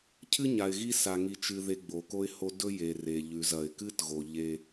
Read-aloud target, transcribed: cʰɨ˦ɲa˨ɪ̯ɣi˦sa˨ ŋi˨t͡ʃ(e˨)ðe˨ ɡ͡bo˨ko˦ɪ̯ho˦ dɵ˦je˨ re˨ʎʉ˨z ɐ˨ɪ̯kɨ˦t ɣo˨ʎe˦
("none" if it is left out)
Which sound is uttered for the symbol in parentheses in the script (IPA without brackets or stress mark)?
ɨ˨